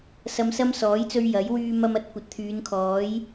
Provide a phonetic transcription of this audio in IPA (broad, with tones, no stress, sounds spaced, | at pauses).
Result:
s ɐ˧ m s ɐ˥ m s ɔː˨˥ j t͡s ɵ˧ ɥ j ɐ˨˥ j w yː˧ m ɐ˧ m ɐ˨˥ t̚ kʷ ɐ˨ t̚ t̪ʰ yː˨˧ n kʰ ɔː˨˥ j